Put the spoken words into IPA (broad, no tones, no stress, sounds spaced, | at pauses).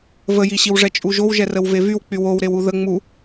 v ə j i ɕ i w ʐ ɛ t͡ʃʼ u ʒ o w ʒ ɛ r ə w v e v y w k͡p y w o w ɾ e w u ð ə ŋ͡m u